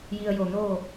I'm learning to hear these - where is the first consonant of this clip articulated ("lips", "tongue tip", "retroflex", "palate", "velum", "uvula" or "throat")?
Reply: palate